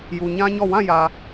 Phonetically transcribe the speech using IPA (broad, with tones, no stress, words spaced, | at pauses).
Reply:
ju˨ɲã˦ɲɔ˦˨ wã˦˨jä˨